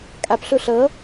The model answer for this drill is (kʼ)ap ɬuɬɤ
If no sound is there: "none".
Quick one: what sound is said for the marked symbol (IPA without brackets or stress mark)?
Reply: kʼ